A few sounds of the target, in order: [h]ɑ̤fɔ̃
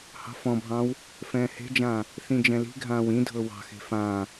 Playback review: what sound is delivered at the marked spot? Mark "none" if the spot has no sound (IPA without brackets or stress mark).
h